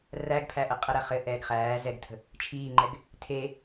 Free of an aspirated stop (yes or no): no